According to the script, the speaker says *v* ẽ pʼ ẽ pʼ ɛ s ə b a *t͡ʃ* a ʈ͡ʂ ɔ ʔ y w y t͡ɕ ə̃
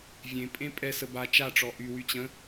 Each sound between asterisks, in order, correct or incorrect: incorrect: vʲ, correct

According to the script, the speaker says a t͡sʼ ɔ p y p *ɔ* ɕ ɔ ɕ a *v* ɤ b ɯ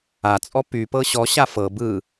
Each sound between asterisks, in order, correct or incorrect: incorrect: ɤ, incorrect: f

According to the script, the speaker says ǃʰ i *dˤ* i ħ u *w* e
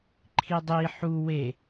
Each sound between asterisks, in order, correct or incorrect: correct, correct

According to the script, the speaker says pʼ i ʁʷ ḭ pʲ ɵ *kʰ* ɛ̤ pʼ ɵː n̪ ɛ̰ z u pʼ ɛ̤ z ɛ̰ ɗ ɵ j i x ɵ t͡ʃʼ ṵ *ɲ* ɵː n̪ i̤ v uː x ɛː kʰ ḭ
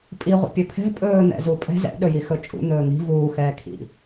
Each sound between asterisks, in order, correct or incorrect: incorrect: pʰ, incorrect: n̪

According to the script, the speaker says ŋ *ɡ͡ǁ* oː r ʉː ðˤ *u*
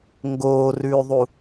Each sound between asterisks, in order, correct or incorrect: incorrect: ɡ, correct

